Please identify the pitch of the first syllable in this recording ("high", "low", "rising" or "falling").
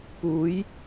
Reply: rising